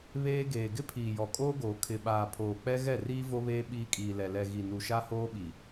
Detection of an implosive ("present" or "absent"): present